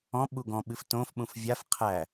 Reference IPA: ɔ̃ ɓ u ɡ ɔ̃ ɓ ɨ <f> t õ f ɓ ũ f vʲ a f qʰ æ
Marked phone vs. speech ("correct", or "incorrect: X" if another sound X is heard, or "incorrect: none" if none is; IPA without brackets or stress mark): correct